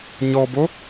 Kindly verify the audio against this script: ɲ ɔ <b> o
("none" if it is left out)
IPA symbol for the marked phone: b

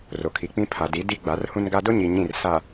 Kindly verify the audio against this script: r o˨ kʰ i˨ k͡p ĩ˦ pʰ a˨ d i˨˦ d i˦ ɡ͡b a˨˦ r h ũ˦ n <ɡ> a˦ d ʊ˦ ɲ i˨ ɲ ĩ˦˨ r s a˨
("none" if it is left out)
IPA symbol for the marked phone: ɡ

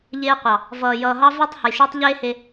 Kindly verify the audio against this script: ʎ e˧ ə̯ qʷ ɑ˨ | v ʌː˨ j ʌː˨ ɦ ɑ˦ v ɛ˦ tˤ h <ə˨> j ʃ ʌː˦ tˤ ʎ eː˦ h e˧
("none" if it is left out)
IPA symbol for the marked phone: ə˨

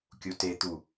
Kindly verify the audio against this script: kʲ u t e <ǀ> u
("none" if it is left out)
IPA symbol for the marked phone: t̪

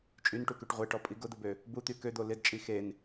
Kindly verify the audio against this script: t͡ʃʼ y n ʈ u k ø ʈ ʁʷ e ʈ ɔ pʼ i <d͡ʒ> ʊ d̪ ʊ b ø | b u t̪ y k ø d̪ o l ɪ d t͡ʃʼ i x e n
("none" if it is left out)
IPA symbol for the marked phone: ɡ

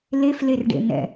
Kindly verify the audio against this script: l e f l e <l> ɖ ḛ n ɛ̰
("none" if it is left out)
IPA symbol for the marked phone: r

